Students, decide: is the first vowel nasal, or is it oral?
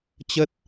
oral